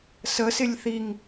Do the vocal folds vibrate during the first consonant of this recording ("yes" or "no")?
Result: no